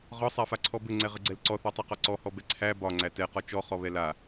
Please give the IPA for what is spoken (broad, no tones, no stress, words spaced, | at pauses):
ʁɒsˤafaǀʰɔ bɘŋ͡ǀɛʁəɡ͡ǀɛl ǀɔθɒtˤɯqɒ ǀɔhɔbɛ ǀʰæ bɒŋ͡ǀæ tɛqɒ t͡ʃɔχɔβɛ la